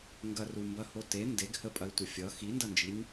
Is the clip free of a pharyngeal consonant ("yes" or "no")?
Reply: yes